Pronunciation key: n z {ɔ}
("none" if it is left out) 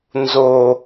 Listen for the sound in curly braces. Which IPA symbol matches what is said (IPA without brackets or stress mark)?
o